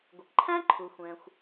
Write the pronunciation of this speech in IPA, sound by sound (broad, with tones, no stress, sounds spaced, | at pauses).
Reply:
ɡʷ ɪ˩ k ǃʰ æ̃˥ ǃʰ u˩ xʷ ɛ̃˩ xʷ